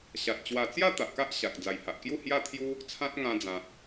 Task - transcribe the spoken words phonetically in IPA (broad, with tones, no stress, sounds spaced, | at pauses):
ɕ a˨ t̚ t͡ɕ w a˨˩ t͡s j a˥˧ t̪ a˨ ʔ k a˦ ʔ ɕ a˨ k̚ d͡z a˨˩ j h a˨ ʔ k j u˥˧ h j a˥˧ t̪ʰ j u˦ | t͡sʰ ã˦ t̚ ŋ ã˧ d͡z ã˨ t̚